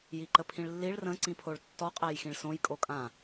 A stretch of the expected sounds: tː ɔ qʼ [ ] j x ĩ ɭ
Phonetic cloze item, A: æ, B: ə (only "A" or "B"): A